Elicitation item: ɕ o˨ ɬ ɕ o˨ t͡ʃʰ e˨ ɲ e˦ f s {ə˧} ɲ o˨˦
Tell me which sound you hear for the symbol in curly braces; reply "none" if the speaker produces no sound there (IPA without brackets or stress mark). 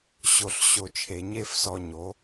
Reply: ɔ˧